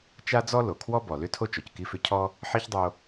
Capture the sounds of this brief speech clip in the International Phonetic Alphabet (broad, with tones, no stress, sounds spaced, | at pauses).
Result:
t͡ʃ a˥ d͡z ɔ˥ l o˩ kʰ w ɔ˥ b ɔ˩ l ʏ˥ tʰ o˥ t͡ʃ ɔ˩ c k i˦ f ʏ˦ cʰ ɔ˥ | ħ i˥ ç dˤ o˦